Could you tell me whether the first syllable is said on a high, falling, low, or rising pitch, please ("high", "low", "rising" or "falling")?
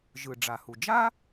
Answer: low